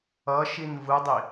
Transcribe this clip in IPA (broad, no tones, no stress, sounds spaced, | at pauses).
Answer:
ʌ ʃ i n v ɯ dˤ i